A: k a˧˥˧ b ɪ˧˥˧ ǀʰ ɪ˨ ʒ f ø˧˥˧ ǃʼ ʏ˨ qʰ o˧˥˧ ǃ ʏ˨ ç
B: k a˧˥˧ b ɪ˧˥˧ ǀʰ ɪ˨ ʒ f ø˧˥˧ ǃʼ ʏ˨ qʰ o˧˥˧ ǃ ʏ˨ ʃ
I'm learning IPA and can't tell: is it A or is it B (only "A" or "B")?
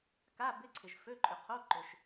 B